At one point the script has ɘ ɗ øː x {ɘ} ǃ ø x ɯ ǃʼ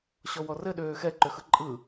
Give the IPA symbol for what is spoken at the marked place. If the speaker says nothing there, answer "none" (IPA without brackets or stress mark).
ɛ